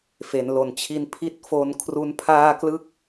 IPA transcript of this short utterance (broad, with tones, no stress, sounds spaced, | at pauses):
f e˩˦ n l o˨˩ n t͡ɕʰ i˦˥ n pʰ i˥˩ t̚ f o˧ n kʰ r u˦˥ n pʰ aː˥˩ k l ɯ˥˩ k̚